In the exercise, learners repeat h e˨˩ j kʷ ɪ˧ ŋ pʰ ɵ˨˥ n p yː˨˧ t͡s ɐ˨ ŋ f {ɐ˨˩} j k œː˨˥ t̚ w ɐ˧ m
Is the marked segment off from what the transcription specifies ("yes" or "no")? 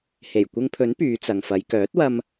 yes